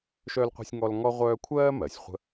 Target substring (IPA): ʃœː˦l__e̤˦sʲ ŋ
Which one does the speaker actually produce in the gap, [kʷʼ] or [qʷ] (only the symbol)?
qʷ